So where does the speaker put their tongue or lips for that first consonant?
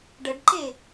retroflex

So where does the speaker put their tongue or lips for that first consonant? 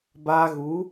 lips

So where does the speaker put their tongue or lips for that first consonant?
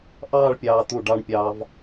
throat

